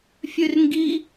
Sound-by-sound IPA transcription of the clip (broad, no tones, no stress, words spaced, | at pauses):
fʲʉrŋɡi